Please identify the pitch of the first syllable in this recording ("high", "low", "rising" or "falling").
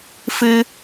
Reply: high